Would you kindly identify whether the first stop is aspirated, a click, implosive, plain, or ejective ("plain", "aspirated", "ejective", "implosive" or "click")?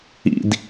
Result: plain